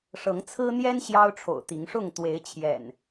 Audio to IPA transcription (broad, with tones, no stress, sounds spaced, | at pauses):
ʂ ɤ˨˦ ŋ t͡sʰ ɹ̩˦ n̪ j ɛ˦ n ɕ j ɑ˦ ʊ̯ ʈ͡ʂʰ o̰˨˩ ʊ̯ t̪ i˨˦ ŋ ʂ ʊ˥˨ ŋ t̪ w e˨˦ ɪ̯ t͡ɕʰ j ɛ̰˨˩ n